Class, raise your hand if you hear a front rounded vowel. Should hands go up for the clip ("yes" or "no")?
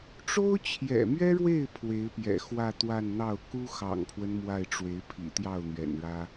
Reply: no